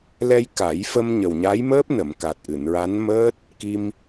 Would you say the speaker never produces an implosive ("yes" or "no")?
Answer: yes